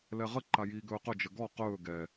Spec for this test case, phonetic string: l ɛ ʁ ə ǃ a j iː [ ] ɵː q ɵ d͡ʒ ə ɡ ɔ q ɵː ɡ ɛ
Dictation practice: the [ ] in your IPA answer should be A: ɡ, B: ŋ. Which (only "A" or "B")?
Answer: A